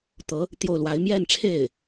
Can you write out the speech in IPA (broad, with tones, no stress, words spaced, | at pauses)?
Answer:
t̪ɤ˧˥ | t̪jo˥˩ʊ̯lwa˧˥ɪ̯ mjɛ˥˧nʈ͡ʂʰe˥˩ɪ̯